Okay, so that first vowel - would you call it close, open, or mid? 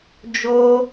mid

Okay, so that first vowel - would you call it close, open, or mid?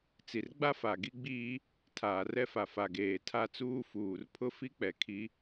close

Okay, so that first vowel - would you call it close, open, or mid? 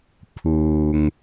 close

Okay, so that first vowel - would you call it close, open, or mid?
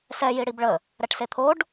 mid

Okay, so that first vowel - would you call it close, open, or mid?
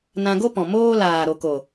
open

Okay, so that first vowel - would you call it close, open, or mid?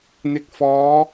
close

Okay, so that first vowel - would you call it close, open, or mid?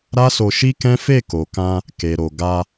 open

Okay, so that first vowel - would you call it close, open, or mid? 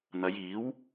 open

